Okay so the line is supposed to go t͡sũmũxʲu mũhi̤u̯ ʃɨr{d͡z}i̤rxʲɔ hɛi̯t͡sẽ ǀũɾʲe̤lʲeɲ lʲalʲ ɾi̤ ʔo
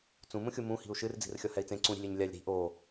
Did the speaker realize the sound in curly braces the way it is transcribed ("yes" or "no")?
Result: yes